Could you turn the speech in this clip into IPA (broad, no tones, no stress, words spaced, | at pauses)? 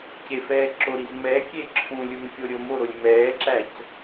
cefɛːǁoɾiz mɛkʲe ǁʰũlʲumkʲo ɾʲomoɾolʲ mɛːǁæc